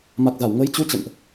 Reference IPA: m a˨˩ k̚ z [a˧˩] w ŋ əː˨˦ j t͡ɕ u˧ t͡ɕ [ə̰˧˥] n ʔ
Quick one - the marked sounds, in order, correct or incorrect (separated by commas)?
correct, incorrect